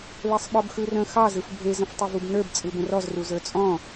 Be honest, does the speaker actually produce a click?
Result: no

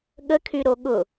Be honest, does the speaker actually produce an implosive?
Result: yes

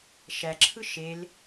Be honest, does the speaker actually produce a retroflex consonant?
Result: no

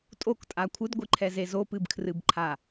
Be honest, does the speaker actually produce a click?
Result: yes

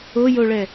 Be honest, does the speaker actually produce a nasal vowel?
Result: no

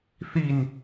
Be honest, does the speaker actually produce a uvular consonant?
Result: no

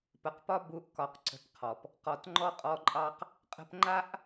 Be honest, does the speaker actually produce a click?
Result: yes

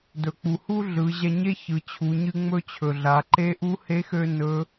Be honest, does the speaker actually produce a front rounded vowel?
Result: yes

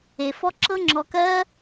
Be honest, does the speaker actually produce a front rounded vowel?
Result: no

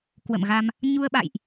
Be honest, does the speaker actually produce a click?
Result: no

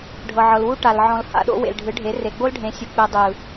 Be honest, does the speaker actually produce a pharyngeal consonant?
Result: yes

